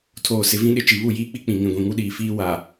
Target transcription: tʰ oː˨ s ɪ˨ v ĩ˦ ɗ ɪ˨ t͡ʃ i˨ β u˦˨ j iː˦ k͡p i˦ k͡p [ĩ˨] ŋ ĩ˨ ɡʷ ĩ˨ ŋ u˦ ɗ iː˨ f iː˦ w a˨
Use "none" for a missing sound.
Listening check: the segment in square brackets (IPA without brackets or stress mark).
ĩ˨